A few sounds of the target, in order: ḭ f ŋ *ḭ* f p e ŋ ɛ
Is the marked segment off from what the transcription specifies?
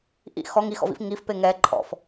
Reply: yes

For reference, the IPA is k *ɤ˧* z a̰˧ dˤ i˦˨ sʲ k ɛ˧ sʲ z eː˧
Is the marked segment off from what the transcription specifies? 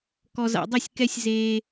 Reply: yes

